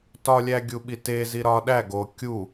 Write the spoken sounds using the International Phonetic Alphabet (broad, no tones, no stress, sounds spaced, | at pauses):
t ɒ lʲ æ ɡʲ u ɓ i t e z i ɾ ɒ ɗ æ ɡ o kʲ u